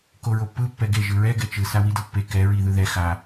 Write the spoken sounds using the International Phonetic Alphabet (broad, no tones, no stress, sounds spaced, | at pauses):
k o ɹ o pː ɯ pː ɛ ɡ e ʒ ɯ ɹ ɛ ɡ ɛ t͡ʃ ɯ s a w i d ʌ pː e k ɛ ɹ i ð ɯ ð ɛ x a